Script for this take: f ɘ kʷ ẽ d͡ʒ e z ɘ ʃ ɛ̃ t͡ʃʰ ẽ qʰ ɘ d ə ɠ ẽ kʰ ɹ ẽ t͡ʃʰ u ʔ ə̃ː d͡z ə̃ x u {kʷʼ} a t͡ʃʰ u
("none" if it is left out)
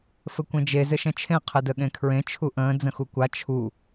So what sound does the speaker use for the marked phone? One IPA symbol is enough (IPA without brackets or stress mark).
kʷ